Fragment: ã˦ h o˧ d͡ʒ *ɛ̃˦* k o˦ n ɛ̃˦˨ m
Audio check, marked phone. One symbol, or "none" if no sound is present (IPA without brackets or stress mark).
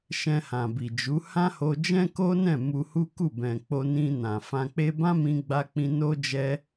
ɛ̃˦